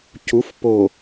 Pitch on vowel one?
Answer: rising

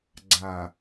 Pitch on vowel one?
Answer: low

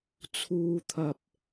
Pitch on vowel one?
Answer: low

